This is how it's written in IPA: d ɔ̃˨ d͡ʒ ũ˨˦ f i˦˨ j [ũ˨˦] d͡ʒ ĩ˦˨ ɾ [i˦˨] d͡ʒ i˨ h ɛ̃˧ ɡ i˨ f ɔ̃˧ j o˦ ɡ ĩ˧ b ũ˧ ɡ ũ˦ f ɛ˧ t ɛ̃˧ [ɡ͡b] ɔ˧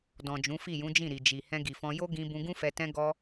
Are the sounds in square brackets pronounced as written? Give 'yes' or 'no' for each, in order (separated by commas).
yes, no, no